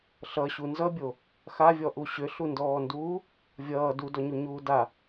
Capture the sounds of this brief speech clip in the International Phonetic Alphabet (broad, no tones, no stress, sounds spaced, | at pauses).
ɬ ʌ ɕ u n z ʌ bʲ o | x a vʲ ɔ ʔ u ɕ ʏ ɬ u n d ɔː n d uː | vʲ ʌː d u d ɔ ɲ u ɲ uː d a